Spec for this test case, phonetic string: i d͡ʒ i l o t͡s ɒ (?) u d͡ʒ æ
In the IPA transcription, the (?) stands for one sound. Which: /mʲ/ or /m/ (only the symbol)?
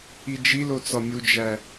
mʲ